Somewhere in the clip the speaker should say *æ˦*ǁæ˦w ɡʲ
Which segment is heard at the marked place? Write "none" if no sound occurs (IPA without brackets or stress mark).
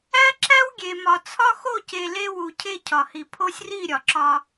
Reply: æ˦